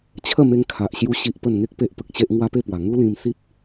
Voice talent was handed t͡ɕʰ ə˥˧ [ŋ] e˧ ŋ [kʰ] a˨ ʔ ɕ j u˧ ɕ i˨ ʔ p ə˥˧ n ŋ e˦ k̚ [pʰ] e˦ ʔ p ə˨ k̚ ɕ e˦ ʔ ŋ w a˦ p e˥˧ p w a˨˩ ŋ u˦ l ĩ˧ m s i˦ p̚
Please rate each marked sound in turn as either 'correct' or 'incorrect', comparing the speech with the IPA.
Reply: incorrect: m, correct, incorrect: p

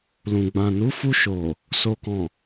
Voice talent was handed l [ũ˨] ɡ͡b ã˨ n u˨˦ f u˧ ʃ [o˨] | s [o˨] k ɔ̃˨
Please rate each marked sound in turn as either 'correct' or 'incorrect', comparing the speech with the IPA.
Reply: correct, correct, correct

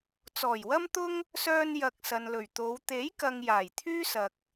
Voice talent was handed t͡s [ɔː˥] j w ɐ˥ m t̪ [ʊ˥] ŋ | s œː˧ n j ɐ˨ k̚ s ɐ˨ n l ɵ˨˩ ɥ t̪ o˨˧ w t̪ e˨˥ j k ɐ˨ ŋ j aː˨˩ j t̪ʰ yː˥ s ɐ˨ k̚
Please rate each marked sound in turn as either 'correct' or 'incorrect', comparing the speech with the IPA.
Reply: incorrect: ɔː˨˩, correct

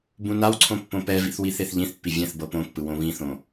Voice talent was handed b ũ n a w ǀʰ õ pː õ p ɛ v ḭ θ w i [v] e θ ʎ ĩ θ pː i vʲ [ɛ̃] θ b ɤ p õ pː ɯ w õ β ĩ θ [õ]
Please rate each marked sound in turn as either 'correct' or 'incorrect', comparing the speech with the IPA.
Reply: incorrect: θ, correct, correct

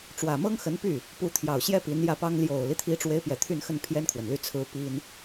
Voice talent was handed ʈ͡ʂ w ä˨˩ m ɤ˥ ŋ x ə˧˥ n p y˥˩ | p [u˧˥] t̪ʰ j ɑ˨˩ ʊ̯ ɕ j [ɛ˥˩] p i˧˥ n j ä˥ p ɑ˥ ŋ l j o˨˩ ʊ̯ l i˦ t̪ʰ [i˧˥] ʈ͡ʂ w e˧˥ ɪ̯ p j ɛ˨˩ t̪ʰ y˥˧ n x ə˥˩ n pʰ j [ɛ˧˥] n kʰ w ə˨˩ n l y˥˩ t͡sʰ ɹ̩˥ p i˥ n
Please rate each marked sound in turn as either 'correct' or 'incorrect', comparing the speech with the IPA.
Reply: correct, incorrect: ɛ˥, correct, incorrect: ɛ˥

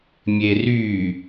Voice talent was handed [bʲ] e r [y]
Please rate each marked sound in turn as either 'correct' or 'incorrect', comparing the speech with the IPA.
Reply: incorrect: mʲ, correct

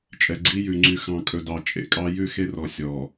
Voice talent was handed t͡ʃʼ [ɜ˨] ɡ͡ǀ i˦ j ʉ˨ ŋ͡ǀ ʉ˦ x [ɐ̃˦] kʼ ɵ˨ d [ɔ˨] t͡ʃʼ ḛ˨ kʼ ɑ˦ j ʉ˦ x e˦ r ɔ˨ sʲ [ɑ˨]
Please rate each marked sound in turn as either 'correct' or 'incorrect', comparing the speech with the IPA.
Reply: incorrect: ɛ˨, incorrect: ɑ̃˦, incorrect: ɑ˨, incorrect: ɔ˨

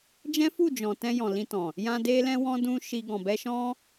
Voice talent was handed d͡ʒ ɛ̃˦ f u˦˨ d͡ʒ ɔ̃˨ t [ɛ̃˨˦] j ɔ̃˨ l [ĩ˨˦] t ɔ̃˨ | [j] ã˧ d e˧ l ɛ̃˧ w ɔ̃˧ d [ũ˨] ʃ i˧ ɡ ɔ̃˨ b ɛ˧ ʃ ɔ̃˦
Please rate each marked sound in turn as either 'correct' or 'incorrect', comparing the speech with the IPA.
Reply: incorrect: ɛ̃˧, incorrect: ĩ˧, correct, incorrect: ũ˦

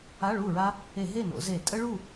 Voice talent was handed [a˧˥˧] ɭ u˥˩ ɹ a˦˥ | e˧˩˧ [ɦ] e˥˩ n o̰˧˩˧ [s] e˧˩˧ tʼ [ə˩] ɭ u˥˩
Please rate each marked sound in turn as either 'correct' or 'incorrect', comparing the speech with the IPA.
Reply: correct, correct, incorrect: z, incorrect: ə˦˥

